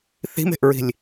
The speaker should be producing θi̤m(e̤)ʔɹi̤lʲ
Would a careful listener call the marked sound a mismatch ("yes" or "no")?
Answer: no